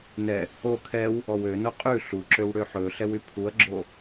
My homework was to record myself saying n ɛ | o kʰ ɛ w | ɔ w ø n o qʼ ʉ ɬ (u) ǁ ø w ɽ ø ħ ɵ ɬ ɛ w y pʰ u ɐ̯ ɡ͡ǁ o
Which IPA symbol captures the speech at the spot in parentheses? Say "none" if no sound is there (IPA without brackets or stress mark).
u